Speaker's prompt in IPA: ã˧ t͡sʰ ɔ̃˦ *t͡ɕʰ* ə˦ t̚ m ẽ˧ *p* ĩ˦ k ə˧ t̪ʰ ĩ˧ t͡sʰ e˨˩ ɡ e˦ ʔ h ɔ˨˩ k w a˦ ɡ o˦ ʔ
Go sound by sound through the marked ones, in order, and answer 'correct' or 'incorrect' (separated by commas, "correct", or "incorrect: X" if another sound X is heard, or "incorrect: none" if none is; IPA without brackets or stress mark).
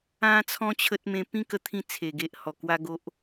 correct, correct